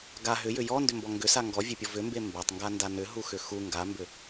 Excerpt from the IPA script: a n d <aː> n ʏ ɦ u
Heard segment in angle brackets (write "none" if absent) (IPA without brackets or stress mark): a